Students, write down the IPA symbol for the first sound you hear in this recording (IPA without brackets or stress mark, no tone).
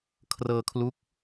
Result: kʰ